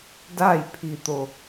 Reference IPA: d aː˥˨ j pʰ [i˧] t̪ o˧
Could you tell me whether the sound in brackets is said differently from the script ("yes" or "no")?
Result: no